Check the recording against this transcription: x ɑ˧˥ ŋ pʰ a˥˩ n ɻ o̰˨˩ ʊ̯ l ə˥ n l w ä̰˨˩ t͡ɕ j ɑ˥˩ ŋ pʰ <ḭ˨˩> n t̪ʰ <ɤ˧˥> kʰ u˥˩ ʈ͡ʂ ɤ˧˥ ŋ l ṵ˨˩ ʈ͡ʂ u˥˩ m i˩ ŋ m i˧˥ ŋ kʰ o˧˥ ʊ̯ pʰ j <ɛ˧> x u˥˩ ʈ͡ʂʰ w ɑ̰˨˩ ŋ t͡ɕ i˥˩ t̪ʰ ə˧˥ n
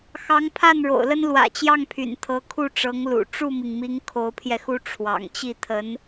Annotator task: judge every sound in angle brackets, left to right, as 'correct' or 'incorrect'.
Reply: incorrect: y̰˨˩, correct, correct

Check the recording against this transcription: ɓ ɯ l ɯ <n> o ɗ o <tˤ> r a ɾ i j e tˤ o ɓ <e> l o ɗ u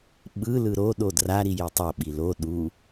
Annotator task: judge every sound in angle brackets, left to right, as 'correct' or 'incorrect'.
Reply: incorrect: ɾ, incorrect: d, incorrect: i

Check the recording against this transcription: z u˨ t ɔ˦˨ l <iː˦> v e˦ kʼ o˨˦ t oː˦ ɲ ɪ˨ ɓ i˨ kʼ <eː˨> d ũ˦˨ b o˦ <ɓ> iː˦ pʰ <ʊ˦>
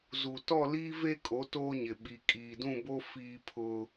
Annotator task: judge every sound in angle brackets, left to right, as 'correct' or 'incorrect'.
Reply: correct, incorrect: iː˨, incorrect: f, correct

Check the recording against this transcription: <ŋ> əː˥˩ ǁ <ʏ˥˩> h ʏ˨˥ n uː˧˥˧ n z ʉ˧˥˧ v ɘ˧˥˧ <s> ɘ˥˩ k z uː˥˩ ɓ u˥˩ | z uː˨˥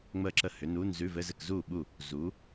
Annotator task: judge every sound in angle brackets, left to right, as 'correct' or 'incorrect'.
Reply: incorrect: ŋ͡m, incorrect: ə˥˩, incorrect: z

